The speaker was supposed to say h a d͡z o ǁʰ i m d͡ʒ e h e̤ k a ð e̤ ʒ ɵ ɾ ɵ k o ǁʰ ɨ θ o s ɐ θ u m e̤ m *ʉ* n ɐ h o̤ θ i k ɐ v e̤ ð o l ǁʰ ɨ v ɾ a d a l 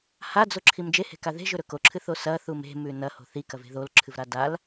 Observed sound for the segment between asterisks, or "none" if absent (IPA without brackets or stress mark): ʉ